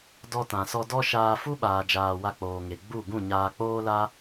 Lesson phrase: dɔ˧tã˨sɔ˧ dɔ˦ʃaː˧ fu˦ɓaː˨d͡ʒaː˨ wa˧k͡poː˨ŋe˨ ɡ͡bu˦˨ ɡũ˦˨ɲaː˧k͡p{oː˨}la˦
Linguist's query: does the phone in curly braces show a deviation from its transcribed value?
yes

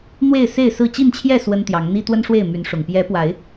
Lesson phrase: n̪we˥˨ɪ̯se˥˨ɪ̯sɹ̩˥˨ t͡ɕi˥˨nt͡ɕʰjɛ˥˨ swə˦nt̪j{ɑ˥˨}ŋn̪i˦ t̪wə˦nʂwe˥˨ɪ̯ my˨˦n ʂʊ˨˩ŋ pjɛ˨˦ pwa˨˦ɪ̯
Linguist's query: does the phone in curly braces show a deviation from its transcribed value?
yes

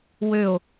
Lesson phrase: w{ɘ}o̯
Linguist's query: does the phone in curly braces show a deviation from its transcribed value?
yes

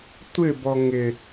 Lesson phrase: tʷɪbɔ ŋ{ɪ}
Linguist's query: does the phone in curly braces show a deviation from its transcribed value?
no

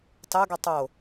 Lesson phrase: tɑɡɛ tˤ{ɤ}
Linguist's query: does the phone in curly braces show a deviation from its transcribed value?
yes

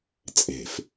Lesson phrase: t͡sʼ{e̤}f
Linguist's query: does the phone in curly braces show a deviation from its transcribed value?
no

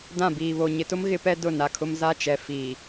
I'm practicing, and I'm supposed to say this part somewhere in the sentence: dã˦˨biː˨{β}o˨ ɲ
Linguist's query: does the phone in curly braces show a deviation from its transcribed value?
no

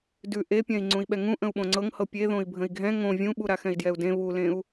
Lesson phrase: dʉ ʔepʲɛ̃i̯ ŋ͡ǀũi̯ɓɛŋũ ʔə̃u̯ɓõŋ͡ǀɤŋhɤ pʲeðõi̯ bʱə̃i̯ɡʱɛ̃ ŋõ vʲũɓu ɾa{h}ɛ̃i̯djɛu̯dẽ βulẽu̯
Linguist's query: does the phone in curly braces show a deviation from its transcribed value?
yes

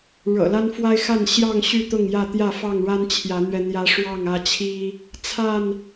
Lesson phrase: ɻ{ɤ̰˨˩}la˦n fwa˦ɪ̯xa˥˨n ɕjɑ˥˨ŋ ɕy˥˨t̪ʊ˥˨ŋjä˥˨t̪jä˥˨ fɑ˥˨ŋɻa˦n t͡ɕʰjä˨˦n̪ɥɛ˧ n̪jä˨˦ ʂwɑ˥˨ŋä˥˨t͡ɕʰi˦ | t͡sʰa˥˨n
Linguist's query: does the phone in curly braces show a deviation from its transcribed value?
no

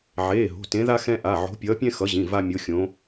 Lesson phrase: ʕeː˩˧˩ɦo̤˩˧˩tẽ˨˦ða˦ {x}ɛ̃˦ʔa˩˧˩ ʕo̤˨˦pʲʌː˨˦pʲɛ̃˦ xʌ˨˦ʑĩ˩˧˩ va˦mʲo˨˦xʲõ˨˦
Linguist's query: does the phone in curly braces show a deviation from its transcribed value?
no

